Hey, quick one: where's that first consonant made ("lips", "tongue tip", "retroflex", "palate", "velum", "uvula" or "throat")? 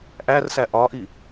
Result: throat